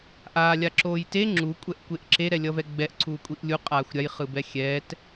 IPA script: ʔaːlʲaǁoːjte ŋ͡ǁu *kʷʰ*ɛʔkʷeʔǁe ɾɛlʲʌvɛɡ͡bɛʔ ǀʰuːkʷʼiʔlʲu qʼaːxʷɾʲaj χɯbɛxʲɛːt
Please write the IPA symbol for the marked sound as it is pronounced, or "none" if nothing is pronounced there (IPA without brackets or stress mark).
kʷʼ